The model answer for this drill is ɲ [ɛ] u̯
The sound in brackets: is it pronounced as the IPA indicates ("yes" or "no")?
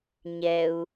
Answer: yes